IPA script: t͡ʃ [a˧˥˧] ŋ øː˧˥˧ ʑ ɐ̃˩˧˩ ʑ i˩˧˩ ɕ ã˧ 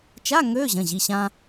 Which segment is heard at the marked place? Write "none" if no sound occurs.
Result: a˧˥˧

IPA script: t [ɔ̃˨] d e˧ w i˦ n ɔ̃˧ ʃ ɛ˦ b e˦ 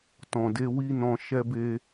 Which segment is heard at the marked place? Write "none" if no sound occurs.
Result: ɔ̃˨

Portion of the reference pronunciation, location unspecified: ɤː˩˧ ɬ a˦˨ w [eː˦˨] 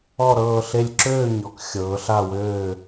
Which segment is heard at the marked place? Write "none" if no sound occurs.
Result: øː˦˨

